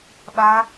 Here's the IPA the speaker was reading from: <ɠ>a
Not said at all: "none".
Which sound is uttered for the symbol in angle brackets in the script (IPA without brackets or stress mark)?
ɓ